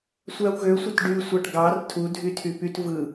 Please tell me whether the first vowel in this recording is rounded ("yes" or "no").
no